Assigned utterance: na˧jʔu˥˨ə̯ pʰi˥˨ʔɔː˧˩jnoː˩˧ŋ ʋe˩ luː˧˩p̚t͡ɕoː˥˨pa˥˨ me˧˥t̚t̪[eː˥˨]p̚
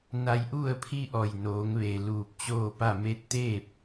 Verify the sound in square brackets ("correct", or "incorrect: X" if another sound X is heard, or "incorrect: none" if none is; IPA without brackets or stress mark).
correct